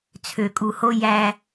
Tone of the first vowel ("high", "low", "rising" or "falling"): low